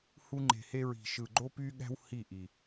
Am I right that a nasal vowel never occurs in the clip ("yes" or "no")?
yes